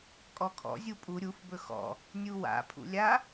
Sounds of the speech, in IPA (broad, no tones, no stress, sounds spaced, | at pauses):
kʼ ɔ kʰ ɔ̰ zʲ u pʼ u ɾʲ u f b ɵ x ɔ̰ | nʲ u w a̰ pʰ ṵ lʲ a